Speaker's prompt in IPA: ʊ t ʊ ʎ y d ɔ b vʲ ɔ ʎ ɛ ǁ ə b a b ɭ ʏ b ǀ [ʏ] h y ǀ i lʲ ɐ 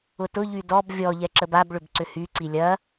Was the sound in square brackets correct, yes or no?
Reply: yes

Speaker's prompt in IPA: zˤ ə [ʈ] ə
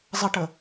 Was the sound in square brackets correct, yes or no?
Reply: yes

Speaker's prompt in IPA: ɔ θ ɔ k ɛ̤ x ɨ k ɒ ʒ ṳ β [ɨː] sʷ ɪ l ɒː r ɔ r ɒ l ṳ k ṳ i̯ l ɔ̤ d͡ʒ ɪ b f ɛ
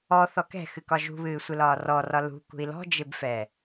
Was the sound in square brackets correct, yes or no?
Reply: yes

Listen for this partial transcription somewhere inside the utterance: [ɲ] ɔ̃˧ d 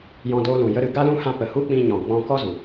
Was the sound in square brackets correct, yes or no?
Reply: no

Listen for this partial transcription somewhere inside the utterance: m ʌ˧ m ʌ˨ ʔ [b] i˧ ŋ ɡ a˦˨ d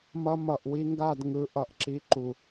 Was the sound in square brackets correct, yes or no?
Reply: no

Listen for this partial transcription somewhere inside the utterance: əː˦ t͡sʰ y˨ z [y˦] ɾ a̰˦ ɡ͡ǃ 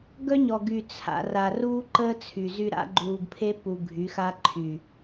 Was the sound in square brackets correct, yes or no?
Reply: yes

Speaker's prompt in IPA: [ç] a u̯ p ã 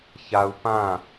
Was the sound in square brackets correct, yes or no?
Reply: yes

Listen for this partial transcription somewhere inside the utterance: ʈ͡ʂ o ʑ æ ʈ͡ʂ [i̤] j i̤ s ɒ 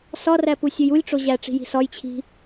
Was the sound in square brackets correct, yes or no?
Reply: yes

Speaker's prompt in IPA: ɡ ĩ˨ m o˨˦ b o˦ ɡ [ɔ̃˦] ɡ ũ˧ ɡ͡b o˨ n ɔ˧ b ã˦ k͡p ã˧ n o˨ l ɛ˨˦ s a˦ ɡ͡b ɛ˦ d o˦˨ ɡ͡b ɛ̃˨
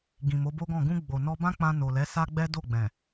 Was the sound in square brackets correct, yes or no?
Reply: no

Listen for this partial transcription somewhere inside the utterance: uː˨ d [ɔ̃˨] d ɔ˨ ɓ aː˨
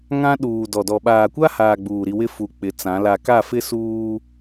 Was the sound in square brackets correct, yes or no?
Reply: no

